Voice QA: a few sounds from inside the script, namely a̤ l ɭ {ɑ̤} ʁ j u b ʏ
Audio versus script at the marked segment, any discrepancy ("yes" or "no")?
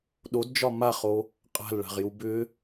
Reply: yes